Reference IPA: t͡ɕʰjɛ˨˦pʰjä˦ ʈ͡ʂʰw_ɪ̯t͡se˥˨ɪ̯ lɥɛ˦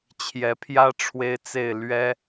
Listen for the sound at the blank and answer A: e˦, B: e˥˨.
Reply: A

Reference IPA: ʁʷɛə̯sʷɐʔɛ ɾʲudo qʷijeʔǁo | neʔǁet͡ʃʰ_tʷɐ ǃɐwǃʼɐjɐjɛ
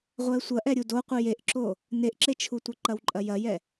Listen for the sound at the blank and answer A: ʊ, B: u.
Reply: B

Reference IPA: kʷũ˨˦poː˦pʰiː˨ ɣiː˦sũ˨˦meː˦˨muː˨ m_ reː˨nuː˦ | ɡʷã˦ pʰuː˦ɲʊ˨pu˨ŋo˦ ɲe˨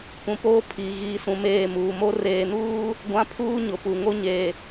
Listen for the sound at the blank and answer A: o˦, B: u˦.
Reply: A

